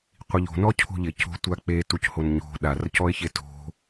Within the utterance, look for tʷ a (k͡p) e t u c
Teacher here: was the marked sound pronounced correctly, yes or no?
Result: yes